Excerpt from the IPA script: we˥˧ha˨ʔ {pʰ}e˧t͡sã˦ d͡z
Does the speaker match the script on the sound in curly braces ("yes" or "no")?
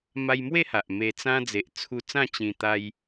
no